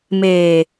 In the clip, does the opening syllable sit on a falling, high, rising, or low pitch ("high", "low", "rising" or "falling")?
low